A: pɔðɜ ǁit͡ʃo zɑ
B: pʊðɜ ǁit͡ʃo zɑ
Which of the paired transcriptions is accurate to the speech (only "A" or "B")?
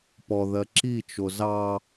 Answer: A